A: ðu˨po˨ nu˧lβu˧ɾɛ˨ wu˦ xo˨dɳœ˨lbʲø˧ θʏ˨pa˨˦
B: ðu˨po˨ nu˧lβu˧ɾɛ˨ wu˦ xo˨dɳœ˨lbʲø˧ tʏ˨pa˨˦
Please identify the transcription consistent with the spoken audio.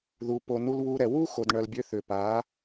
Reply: A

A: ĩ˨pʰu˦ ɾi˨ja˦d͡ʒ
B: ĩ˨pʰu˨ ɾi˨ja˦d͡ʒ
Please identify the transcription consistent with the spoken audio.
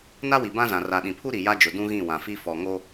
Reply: A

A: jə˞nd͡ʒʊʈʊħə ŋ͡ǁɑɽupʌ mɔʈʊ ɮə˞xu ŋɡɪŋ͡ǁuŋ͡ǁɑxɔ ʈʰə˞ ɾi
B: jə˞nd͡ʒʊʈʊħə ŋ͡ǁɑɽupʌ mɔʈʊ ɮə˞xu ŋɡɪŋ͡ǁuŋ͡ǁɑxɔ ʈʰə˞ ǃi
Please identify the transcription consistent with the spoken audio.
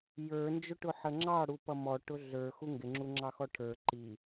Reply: B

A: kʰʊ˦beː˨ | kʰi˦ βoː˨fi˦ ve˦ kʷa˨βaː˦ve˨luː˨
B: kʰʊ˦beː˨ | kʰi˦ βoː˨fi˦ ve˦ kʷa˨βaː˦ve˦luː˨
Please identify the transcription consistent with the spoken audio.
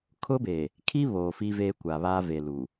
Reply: A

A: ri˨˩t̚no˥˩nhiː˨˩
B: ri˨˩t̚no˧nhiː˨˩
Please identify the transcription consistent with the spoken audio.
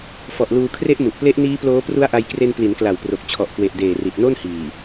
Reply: A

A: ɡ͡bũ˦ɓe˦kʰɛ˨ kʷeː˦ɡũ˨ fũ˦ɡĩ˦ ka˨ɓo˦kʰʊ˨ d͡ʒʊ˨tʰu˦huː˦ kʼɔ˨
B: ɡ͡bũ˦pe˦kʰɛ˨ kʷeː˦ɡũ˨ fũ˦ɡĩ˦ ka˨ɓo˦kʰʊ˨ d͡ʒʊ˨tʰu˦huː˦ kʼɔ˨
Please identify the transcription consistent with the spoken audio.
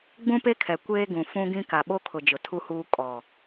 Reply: B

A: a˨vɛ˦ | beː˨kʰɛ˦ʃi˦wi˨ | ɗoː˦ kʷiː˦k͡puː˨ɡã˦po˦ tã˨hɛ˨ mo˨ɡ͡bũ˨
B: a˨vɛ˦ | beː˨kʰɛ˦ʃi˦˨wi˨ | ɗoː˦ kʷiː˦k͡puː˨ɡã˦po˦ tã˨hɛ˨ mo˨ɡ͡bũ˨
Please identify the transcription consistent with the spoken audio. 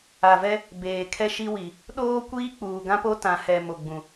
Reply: A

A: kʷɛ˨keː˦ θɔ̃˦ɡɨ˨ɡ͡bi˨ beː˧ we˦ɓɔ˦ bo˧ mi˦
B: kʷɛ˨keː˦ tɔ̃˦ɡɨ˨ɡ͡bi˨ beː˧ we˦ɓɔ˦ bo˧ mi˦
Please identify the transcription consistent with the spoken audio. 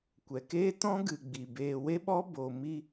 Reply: B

